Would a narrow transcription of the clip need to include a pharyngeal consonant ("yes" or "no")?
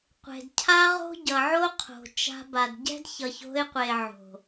yes